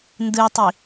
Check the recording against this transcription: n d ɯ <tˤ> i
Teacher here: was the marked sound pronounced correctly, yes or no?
yes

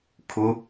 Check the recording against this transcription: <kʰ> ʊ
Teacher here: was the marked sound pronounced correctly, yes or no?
yes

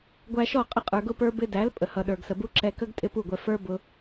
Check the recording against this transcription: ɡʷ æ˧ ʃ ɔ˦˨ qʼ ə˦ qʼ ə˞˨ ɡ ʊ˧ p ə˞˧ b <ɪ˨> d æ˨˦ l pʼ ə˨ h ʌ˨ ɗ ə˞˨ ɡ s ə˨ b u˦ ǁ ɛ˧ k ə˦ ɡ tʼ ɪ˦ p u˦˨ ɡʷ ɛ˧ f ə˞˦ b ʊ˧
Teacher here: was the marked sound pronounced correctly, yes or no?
no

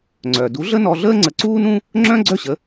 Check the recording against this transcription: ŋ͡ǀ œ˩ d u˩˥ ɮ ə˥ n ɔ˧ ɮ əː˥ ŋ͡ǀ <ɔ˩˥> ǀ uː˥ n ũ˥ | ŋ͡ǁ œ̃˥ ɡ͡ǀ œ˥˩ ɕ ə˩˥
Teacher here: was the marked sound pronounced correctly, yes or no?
no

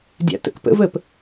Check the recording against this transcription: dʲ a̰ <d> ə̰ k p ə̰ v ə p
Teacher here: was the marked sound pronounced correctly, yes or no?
no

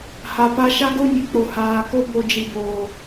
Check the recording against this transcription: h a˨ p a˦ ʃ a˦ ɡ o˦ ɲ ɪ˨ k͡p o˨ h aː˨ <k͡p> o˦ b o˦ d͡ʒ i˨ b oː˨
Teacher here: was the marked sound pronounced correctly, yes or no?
no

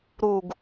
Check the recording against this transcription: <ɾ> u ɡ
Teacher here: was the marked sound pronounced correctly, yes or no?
yes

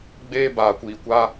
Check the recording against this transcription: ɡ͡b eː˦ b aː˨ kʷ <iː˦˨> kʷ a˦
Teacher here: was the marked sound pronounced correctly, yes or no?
no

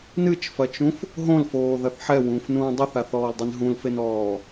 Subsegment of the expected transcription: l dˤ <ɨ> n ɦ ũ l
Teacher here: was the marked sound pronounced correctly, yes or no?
no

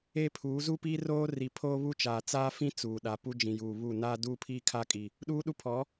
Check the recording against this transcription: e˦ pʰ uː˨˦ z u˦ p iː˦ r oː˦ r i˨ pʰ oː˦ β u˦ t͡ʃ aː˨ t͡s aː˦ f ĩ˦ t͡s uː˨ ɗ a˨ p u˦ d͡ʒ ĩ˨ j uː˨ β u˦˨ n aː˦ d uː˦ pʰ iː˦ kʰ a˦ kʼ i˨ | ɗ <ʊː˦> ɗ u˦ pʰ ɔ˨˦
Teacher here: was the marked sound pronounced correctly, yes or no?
no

